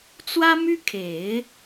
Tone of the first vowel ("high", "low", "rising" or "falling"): high